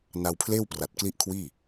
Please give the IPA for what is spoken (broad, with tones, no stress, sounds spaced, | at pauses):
n a˧ w pʰ l eː˥˩ w p r a˨˩ t̚ k l i˥˩ ʔ kʰ w iː˥˩